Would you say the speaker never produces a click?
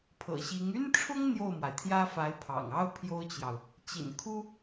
yes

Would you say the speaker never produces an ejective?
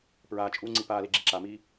no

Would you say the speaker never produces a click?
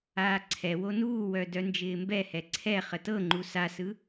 no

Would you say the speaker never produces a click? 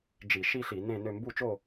yes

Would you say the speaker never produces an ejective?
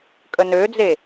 no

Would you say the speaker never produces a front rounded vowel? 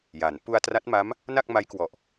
yes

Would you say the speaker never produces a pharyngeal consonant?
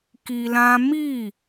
yes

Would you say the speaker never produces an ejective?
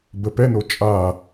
no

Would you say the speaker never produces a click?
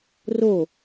yes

